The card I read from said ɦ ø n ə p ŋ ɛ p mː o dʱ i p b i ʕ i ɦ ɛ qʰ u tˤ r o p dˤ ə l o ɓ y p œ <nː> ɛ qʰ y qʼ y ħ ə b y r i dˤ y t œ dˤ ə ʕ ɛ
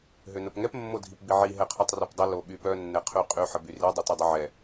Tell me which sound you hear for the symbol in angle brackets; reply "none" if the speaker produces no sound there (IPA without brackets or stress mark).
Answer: nː